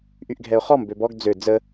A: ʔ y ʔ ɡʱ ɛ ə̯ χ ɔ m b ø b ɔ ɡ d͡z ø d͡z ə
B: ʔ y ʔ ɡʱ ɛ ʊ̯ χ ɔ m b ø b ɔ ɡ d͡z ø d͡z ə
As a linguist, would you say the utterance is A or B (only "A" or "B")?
B